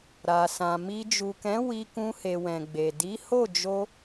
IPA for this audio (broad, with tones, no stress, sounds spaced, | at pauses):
ɾ a˨ s ã˨ m i˧ d͡ʒ u˨ k ɛ̃˨˦ w i˧ k ũ˧ h e˨ w ɛ̃˨ ɡ͡b e˨ d i˨˦ h o˦˨ d͡ʒ o˧